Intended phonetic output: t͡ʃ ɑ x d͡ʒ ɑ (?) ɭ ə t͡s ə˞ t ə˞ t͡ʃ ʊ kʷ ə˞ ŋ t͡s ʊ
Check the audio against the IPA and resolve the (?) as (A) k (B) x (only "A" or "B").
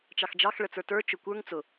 B